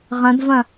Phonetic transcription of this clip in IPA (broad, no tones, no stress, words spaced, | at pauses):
ʁɐ̃dvɐ̃